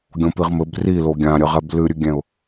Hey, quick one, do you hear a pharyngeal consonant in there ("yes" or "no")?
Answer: no